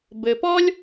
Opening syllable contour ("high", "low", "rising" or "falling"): low